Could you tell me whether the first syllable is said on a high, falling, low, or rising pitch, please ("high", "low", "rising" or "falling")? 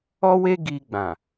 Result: high